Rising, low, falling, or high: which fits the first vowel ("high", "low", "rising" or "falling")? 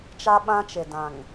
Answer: high